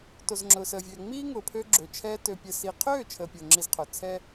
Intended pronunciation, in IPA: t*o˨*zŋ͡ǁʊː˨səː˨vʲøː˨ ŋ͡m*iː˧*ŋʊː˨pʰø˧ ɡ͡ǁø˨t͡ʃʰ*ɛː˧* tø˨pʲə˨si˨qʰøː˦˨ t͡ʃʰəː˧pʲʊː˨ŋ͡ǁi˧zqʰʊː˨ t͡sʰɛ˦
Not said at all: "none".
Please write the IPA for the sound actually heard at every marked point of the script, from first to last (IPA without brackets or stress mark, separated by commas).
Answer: o˨, iː˦, ɛː˧